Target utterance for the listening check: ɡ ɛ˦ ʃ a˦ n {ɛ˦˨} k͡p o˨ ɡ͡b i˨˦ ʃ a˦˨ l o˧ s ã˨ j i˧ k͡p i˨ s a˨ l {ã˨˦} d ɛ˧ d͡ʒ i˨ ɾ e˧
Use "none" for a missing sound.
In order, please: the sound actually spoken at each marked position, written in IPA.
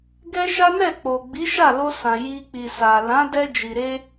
ɛ˦˨, ã˨˦

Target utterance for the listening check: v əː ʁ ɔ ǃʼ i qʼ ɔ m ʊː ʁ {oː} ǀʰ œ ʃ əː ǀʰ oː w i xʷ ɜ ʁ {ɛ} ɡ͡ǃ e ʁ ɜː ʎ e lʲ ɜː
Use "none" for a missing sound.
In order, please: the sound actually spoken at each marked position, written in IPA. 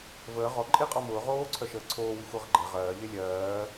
oː, ə

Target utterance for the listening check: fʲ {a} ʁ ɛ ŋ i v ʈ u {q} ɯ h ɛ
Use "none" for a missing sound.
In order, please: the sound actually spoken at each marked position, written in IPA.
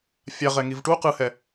a, q

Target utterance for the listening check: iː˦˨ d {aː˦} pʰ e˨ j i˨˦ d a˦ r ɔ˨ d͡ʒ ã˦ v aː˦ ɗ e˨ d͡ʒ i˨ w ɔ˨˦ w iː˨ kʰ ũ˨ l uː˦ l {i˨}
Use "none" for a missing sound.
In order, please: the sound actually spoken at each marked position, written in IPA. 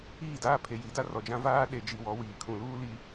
aː˦, i˨

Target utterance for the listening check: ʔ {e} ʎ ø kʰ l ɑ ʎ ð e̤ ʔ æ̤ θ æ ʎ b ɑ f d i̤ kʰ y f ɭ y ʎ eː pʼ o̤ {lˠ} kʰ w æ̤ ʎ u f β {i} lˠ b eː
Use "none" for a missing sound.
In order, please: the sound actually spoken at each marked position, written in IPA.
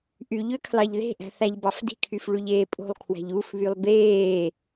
y, lˠ, y

